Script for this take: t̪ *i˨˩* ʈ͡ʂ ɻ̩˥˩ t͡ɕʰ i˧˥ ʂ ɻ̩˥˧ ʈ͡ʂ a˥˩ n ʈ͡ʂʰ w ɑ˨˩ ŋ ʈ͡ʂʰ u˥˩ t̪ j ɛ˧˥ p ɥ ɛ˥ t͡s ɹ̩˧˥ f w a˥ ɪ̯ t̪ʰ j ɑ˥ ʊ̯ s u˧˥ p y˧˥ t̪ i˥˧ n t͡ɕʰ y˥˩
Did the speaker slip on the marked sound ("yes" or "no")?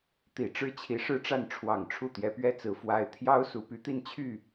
no